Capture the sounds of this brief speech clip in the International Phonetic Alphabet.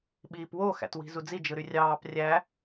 ɓiːpwo xæ̰twi̤zud͡zi d͡ʒɯɾyrʲɑːp rʲæ

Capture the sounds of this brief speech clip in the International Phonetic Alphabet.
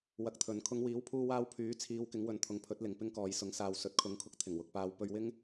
wɐ˧k̚t̪ʰɵ˨˧n kʰʊ˨˧ŋwiː˨˥wpʰuː˧waː˧w pʰyː˨˥t͡sʰiː˨˧w kɪ˨˥ŋwɵ˨˧nt̪ʰʊ˨ŋpʰɵ˨˥t̚ lɪ˨ŋpɪ˥ŋkɔː˨j sʊ˨˥ŋsaː˨w sɵ˨˥t̚kʰʊ˨˥ŋkʰʊ˧k̚ t̪ʰɪ˨˩ŋwʊ˨k̚paː˧w pɵ˧ɥwɪ˥ŋ

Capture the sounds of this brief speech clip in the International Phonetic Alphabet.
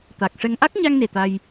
t̪a˨˩k̚ʂɛ˧ŋ ʔa˦˥k̚ɲa˧ŋne˨˩ t̪a˧j

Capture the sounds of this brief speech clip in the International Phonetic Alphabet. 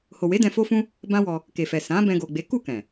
ho˨we˨˦ dɛ̃˧fo˦fũ˦ | bã˦wɔ˧ | ke˨fɛ˨ sã˨˦ bɛ̃˧ɡo˨ɡ͡be˨˦ ku˦˨kɛ̃˨

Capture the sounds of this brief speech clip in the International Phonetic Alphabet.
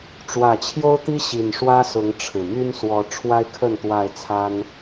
ʈ͡ʂwä˨˩ t͡ɕʰjo˦ʊ̯t̪i˦ ɕi˨˩n ʂwä˦sʊ˨˦ŋ ʈ͡ʂʰɻ̩˨˩ my˦nswɔ˨˦ ʈ͡ʂʰwa˦ɪ̯kʰə˥˨n t̪wa˥˨ɪ̯t͡sʰa˦n

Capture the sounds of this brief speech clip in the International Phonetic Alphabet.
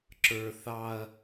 ǁə˞ θɑɐ̯

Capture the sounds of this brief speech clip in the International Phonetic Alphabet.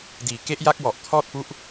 diː˨˩ ke˦˥ʔja˦˥k̚wɔ˨˩ʔ kʰɔː˥˩t̚pu˦˥ʔ

